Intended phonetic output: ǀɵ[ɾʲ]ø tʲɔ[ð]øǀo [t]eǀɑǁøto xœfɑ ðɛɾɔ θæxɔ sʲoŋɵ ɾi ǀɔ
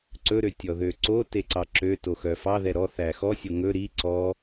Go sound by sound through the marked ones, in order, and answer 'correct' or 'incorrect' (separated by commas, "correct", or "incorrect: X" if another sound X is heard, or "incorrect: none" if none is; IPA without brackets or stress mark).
incorrect: ɾ, correct, correct